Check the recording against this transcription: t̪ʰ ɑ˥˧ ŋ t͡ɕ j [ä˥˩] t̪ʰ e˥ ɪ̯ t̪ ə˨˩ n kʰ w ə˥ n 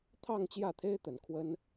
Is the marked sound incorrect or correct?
correct